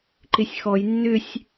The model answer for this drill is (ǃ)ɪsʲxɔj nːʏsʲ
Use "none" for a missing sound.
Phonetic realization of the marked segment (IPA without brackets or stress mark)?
ǃ